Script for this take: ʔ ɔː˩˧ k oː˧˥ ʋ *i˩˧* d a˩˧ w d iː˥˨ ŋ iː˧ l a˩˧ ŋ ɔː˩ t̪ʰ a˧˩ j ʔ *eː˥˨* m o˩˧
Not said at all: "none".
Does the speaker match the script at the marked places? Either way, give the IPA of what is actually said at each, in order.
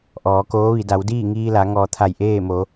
i˩˧, eː˥˨

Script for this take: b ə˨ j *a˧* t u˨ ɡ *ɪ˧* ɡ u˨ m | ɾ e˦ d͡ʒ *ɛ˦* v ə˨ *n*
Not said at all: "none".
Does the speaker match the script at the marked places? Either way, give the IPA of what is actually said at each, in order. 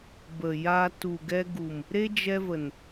a˧, ɛ˧, ɛ˧, n

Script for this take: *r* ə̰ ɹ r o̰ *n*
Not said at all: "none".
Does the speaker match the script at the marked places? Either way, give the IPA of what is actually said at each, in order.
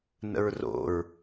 n, ɹ

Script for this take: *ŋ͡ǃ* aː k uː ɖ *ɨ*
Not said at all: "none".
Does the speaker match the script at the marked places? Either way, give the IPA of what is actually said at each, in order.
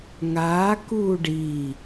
ŋ, i

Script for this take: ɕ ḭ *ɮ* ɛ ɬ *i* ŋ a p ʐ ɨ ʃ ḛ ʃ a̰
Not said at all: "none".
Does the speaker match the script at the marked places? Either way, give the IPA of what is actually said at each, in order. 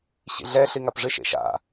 ɮ, i

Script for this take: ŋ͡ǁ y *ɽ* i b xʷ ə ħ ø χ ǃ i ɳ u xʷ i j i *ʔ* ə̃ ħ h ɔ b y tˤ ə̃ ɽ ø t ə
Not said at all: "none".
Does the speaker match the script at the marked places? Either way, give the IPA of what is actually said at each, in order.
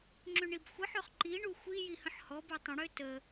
ɳ, h

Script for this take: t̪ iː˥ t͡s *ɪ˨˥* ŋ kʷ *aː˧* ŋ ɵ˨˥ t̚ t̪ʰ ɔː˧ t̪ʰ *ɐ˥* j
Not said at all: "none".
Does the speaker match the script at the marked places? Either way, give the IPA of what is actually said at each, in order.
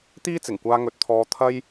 ɪ˨˩, aː˧, ɐ˥

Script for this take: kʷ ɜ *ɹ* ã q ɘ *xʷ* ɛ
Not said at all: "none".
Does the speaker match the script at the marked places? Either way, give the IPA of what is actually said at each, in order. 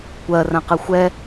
r, xʷ

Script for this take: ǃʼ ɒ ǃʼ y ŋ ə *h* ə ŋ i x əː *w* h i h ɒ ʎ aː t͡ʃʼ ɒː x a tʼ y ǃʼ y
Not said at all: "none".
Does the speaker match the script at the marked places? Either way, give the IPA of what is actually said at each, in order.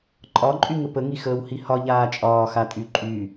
p, w

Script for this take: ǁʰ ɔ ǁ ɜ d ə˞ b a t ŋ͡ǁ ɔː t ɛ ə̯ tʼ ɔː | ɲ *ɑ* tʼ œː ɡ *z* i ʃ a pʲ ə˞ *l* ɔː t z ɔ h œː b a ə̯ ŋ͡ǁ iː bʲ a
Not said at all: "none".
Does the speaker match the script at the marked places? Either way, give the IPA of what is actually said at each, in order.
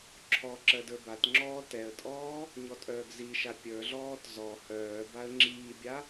ɔ, z, ɮ

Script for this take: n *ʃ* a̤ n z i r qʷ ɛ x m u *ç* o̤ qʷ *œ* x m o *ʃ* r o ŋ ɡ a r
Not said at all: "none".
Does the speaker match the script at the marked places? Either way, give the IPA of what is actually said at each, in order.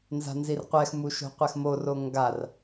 z, ʃ, ɛ, none

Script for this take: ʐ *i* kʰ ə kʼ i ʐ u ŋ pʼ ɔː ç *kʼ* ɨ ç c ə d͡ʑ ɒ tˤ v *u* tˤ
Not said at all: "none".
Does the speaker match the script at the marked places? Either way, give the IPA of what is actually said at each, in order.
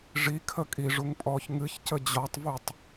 i, ŋ, u

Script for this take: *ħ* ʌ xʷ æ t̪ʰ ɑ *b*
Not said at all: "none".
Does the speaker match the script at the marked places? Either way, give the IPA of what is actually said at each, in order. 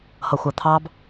h, b

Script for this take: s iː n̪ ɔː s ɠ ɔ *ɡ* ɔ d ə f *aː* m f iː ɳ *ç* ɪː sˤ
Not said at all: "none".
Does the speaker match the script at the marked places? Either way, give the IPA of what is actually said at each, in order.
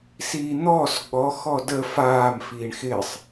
x, aː, x

